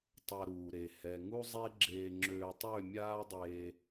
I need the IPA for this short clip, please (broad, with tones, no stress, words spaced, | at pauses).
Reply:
tˤa˧ɾuː˨ɾe˨ hɛ˨ŋu˦ zˤe˦ɡ͡ǁeː˧ŋ͡ǁøː˧ tˤø˦˨mʲaː˦dˤe˧